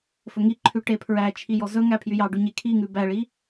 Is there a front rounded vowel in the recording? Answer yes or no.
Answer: yes